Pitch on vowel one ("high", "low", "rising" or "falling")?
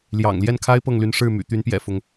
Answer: low